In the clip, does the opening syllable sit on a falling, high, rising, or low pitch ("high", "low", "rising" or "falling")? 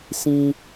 high